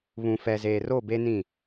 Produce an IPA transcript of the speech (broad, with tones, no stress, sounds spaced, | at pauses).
β ũ˨ f ɛ˨ z eː˨ r o˦˨ b e˦ n ĩ˦˨